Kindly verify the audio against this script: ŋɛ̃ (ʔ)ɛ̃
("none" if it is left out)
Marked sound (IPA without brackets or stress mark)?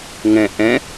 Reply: ʔ